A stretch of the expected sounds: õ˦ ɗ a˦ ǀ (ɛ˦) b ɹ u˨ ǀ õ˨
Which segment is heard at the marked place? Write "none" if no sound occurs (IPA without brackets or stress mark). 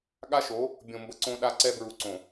ɛ˦